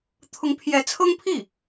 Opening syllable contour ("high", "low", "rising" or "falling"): rising